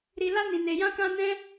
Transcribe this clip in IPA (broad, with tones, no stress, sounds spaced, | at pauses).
ɾ i˧ l a˦ n ĩ˧ n e˧ j ã˦ k ã˦ n ɛ̃˦